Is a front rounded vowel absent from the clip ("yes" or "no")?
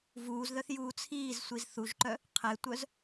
no